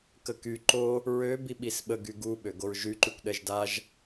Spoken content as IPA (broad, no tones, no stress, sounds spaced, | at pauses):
k ə k y ǃ o | ɹ ø b i ɓ i s ɓ ə ɡ y ɡ u ɓ ø ɡ o ɹ ʒ y ǃ y kʷ ɗ ɛ ʒ d a ʒ